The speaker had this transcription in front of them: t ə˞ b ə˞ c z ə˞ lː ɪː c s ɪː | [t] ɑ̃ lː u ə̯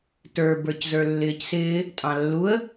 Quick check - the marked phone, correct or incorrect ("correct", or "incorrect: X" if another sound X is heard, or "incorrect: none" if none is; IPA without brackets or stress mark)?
incorrect: tʼ